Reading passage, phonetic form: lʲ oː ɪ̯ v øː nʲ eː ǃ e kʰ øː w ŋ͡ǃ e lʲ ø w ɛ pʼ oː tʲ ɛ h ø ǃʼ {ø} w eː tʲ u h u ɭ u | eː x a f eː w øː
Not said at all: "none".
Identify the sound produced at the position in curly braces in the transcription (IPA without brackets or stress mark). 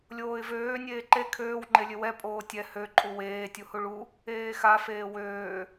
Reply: u